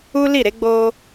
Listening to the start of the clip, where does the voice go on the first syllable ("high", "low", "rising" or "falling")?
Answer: high